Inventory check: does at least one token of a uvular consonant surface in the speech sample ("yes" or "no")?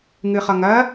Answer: yes